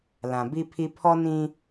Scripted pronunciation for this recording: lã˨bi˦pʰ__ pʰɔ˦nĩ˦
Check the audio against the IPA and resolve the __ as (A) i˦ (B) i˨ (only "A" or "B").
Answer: A